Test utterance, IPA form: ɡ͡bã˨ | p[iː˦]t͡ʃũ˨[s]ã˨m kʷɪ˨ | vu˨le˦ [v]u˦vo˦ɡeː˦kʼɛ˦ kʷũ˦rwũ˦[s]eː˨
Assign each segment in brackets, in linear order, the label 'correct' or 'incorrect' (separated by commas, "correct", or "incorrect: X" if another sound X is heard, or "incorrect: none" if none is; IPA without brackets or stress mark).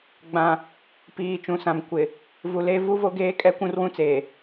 incorrect: iː˨, correct, correct, incorrect: t͡s